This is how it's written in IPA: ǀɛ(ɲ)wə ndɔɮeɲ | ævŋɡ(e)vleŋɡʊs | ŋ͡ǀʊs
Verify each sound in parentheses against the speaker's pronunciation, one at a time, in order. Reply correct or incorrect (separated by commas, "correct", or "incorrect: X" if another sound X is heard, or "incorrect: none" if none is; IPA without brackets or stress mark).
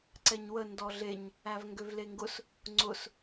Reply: correct, incorrect: ø